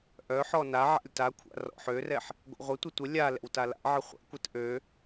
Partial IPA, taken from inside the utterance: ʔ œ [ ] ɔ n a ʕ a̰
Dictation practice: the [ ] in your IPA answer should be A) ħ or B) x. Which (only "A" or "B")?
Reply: A